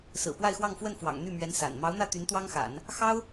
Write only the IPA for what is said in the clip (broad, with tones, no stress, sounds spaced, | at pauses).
s ɹ̩˨˩ p w a˥˧ ɪ̯ x w ɑ˥˧ ŋ f w ə˥˩ n f w ɑ̰˨˩ ŋ n̪ y˥˩ m ɥ ɛ˧˥ n s a̰˨˩ n m ɑ˧˥ ʊ̯ n̪ ä˥˩ t̪ y˧˥ n t̪ w ɑ˥ ŋ x a̰˨˩˦ n | x ɑ˥ ʊ̯